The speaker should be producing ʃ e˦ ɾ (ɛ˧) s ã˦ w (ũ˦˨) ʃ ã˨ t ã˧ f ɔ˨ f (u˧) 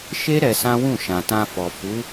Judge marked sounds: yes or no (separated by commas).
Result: yes, yes, no